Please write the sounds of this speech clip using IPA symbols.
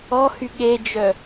ɔhy ɠed͡ʒœ

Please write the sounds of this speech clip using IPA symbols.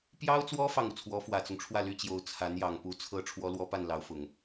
pjɑ˥ʊ̯t͡swɔ˥ fɑ˥˩ŋu˩t͡sʰwɔ˧˥ fwä˨˩t͡sʊ˦ŋʈ͡ʂʰwä˥˩ ly˥t͡ɕjo˧˥ʊ̯ t͡sʰa˧˥n jɑ˨˩ŋ pu˧˥t͡sʰɤ˥ ʈ͡ʂʰwɔ˥lwɔ˥ pa˥˩nlɑ˧˥ʊ̯fʊ˨˩˦ŋ

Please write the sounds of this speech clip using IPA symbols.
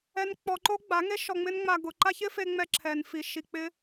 ɛ˧n k͡pɔ˧ǃo˦ ɡ͡ba˨˦ŋe˦ ʃɔ˧ŋ͡mɪ˦nŋ͡ma˧ ɡʊ˨ǃa˦çɪ˦fe˧ ŋ͡mɛ˧ǁʰɛ˨nfi˨ ʃi˨k͡pɪ˧

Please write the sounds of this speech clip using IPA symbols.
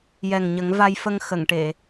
jɛ˨˩ŋɲə˨˩˦ŋ va˧jfə˧ŋ xə˨˩˨ŋʈe˨˩˨

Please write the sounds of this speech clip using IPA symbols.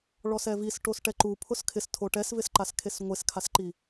ɭɔsɛvis ʈosʈɛǃu pʰʊskʰɪstʰo ʈɛsvɪsǃas kʰesŋʷeskʰasǃi

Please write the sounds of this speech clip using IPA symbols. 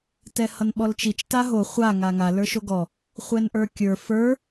tɛhʌnɓɔlt͡ʃit͡ʃ taɦo χʷa ŋaŋa lə˞ʃoɡɔ | χʷɛnʔə˞kʲə˞ fə˞

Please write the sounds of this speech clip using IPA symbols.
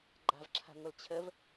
ɡ͡ǃa̤vǁʰa̤ŋʷəlt͡ɕʰəv

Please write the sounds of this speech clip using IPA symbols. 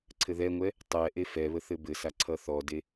ǀʰɘðɛŋʷɛ | tˤɛʔe fɛβə θɘbɘsa ǀʰʌθɔde

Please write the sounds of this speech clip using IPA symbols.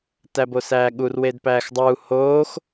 tæbosæːɠur wedpæːxdˤuː hoːx

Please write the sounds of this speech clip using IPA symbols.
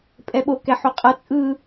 pʼɛɓo kɛħoqʼʌ t͡sʼɯ

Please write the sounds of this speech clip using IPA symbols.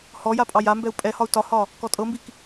hɔja pʼɑjambɛu̯ pʼɛhɒu̯ tɒhɒ | kɔtʼɤmbik

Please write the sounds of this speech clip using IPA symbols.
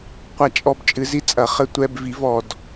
qʷa˦˨t͡ʃʼɔ˦˨b t͡ʃʼɨ˩˥zi˦t͡sʼɐ˩˧ χɘ˦˨tʷɛ˦˨b vi˩˥vɔ˩d

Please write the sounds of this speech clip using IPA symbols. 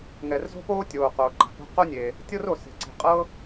ŋɛ˩rzo̤˥poː˥ tʲoː˩ qoː˩ǃa̤˩po̤˥ qo˥nʲe˩ | tʲɤ˥ro˩se̤˩ ǀe̤˩qʼɤ˥

